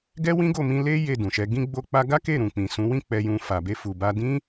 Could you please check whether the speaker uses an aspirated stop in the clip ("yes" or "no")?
no